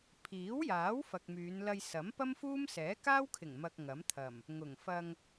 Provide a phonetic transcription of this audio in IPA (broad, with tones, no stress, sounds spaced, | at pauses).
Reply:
pʰ iː˨˥ w j aː˨˥ w f ɐ˨ k̚ m yː˨˧ n l ɐ˧ j s ɐ˨˥ m p ɐ˥ m f uː˥ m s ɛː˨˥ k aː˥ w kʰ ɪ˨˩ ŋ m ɐ˧ k̚ ŋ ɐ˨˥ m t̪ʰ ɐ˨˩ m | ŋ ʊ˨˩ ŋ f ɐ˧ ŋ